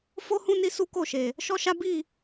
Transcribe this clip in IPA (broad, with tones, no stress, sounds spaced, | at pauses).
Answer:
f o˦ h ũ˦ n i˧ s u˦ k o˦˨ ʃ e˨ | ʃ ɔ˦ ʃ a˦ b i˦˨